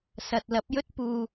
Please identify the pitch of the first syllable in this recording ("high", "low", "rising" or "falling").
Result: low